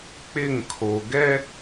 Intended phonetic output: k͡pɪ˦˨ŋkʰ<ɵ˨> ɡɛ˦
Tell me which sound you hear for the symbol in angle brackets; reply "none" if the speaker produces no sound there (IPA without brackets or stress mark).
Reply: o˨